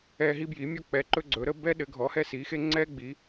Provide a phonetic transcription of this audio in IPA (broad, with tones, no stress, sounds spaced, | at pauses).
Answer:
ɛ˧ ɦ i˧ b j i˩˧ mʲ ɔ˧ k͡p ɛ˩˧ ǃ ɵ˧ ɡ͡ǀ ɵ˩˧ ɾ ə˧ b ɛ˧ ɗ ɘ˩˧ ɡʱ ɔ˩˧ h ɛ˧ s i˩˧ x e˧ ŋ͡ǀ ɛ˧ ɡ͡b i˩˧